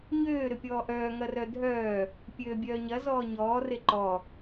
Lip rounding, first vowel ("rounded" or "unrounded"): rounded